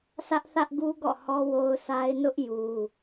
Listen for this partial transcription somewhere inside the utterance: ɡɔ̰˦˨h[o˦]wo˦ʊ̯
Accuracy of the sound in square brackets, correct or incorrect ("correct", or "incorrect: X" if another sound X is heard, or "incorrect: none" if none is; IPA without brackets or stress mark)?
incorrect: ɔ˦